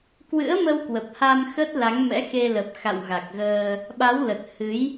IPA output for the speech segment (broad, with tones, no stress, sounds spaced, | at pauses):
k w ɨ̰˧˥ ə̯ m ə˧ w k w ə˨˩ p̚ h a˧ m x ə˦˥ t̚ l a˨˦ ŋ m ɛ̰˧˥ x e˧ l ə˨˩ p̚ x a̰˧˨ w ɣ a˨˩ k̚ ɣ əː˧ | ɓ a˨˦ w l ə˨˩ t̚ h ɨ˨˦ j